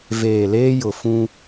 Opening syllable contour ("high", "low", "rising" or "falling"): low